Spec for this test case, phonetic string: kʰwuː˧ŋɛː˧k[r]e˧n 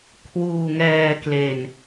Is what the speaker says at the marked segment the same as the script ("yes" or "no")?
no